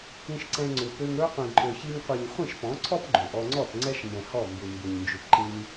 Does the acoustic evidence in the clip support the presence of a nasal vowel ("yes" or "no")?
yes